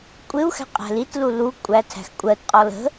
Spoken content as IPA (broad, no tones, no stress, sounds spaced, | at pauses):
kʷʼ ɪ u̯ x æ̤ qʼ æ̤ l i t l u l u kʷʼ æ tʰ æ̤ x kʷʼ ɜ t qʼ ɔ l ə̤